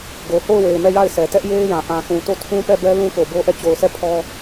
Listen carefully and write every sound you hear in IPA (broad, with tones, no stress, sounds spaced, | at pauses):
ɡ o˨ h o˦˨ ʊ̯ w e˨ ɪ̯ m ɛ˦˨ j a˦˨ ɪ̯ sʰ ɛ˨ t ɛ˦ ʔ j e˦ ɪ̯ j ã˨ ʔ ã˨ θ ũ˨ t o˦˨ tʰ ũ˦ p ɛ˦˨ b ɛ˦ l ũ˦ k o˨ b o˦ ʔ ɛ˦˨ t͡ɕ o˨ ʊ̯ sʰ ɛ˦˨ pʰ ɔ˦